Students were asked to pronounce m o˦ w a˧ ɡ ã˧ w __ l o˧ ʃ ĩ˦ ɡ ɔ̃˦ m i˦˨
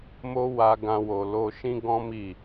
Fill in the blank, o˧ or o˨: o˨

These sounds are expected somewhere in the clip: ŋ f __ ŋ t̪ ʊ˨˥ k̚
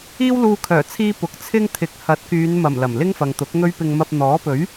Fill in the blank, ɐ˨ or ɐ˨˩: ɐ˨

